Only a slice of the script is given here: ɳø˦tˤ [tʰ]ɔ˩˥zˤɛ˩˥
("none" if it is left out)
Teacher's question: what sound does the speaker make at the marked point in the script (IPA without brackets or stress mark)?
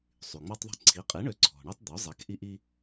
d̪